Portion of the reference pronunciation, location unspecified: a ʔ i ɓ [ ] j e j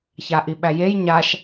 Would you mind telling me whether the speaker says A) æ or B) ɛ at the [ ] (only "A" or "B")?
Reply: A